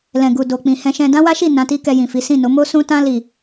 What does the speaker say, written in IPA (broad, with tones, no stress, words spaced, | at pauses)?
lɛ̃˨ ɡu˨ do˨k͡pĩ˨ hɛ̃˧ʃɛ̃˧ dã˦wa˦ʃi˦˨ nã˨˦ti˦ kɛ˧jĩ˨fi˨˦ sĩ˦˨no˨˦ mo˦sũ˦tã˦ li˦˨